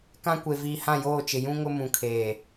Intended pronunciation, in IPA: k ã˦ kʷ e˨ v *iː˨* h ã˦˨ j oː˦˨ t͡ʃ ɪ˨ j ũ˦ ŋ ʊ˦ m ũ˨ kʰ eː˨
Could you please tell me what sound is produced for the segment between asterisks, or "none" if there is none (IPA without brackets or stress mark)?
iː˨